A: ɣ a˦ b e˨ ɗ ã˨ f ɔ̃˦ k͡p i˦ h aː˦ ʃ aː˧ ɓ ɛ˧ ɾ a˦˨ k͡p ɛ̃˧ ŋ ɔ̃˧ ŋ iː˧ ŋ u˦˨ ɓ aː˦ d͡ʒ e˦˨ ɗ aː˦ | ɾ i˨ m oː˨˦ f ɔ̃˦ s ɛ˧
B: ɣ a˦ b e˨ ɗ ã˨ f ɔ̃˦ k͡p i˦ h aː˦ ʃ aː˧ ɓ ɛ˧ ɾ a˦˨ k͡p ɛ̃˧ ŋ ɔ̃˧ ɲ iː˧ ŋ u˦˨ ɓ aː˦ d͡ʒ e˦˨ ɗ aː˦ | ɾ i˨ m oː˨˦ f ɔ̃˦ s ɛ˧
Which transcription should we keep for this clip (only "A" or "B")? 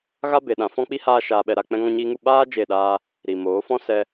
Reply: B